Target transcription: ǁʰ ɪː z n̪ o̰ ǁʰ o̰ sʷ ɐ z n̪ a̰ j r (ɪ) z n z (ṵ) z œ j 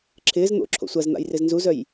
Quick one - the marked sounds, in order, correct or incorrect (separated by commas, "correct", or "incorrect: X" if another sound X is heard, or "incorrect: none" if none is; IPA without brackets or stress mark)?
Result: correct, incorrect: u